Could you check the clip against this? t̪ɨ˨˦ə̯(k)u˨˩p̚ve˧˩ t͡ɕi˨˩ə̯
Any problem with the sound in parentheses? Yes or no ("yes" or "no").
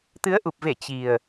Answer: yes